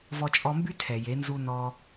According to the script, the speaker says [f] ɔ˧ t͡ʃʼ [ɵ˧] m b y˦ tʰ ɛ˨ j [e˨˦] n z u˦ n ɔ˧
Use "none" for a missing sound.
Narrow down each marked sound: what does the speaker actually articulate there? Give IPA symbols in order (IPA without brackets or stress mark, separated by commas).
v, ɔ˧, e˨˦